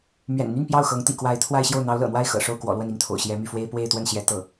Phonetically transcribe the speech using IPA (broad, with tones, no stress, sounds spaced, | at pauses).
m ɥ ɛ̰˨˩ n n̪ y˥˧ n p j ɑ˥˩ ʊ̯ x ɤ˧˥ ŋ t̪ ḭ˨˩ k w a˧˥ ɪ̯ t̪ʰ w a˥˧ ɪ̯ ɕ j o˥˩ ʊ̯ n̪ ɑ˧˥ ʊ̯ l ɤ̰˨˩ n̪ w a˥˩ ɪ̯ x ɤ̰˨˩ ʂ o˥˩ ʊ̯ k w ɔ̰˨˩ l w ə˥˧ n i˥˩ ŋ t̪ʰ o̰˨˩ ʊ̯ ɕ j ɛ˧˥ m y˥˩ f w e˥ ɪ̯ p w e˥˧ ɪ̯ t̪ w ə˥˩ n ɕ j ɛ˧˥ t̪ ɤ˥˩